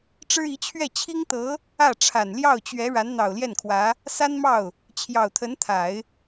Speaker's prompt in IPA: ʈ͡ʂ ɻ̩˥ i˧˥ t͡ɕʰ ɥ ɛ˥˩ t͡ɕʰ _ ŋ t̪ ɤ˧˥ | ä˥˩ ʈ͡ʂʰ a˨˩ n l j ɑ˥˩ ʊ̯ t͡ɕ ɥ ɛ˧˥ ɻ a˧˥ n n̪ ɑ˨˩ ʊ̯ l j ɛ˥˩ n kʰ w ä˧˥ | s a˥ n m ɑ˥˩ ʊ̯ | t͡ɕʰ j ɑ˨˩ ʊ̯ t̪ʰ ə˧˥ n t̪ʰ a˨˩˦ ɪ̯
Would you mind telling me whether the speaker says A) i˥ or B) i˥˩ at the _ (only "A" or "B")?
A